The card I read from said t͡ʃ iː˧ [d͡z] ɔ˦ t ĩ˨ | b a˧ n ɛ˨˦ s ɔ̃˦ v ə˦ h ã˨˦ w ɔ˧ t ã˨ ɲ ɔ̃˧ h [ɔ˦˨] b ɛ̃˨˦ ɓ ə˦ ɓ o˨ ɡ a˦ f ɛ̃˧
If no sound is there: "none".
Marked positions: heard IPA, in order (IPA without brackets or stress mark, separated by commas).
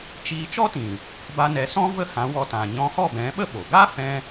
t͡ʃ, ɔ˦˨